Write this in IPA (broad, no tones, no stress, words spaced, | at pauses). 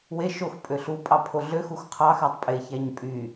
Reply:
we ʃox pʼøɬu pʼɑpʰoɮø xuxqʰɑxætˤ pʼeçæɲ pʼy